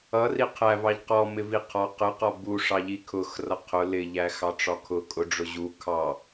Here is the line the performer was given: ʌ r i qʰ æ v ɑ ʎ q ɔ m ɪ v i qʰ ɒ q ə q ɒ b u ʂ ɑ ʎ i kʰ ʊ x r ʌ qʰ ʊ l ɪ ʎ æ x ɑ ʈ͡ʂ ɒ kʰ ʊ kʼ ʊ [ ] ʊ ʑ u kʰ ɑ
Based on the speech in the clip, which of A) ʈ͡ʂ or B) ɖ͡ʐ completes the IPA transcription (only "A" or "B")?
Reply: B